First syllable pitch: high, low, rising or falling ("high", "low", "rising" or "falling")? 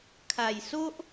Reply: low